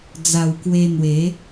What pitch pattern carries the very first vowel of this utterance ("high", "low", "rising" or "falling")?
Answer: low